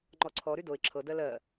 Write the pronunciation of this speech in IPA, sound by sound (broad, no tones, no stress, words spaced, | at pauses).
ŋ͡ǃɔǀʰɔɾy doɪ̯ ǁʰɤdɜ lɜ